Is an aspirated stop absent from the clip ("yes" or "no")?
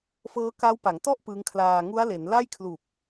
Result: no